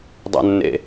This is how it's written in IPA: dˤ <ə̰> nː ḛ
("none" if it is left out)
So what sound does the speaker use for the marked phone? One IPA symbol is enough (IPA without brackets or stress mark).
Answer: ə̰